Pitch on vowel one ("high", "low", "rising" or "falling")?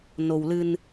low